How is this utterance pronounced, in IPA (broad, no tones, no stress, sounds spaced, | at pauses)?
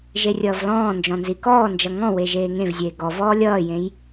ʒ e rʲ ʌː v l ɔ̃ː n d͡ʒ ɔ̃ n z i k ɔː n d͡ʒ ʌ ŋ ɔ̃ w e ʒ eː ŋ ẽ v zʲ eː ɡ ɔ v ɔː lʲ ʌː j ẽ j